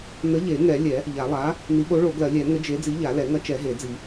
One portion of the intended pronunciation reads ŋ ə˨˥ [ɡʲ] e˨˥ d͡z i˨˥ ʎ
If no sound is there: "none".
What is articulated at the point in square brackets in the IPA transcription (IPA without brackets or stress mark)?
d͡ʒ